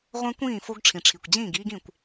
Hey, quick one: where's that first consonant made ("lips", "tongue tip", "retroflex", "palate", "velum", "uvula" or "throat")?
uvula